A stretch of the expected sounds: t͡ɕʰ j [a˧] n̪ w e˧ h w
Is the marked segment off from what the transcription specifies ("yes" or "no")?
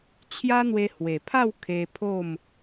yes